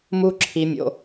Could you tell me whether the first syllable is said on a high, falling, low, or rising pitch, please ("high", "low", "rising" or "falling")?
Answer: high